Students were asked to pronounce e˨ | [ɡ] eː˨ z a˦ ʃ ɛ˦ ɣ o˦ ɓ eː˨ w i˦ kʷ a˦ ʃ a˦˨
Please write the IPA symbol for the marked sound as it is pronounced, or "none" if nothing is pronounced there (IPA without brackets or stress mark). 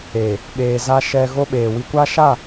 ɓ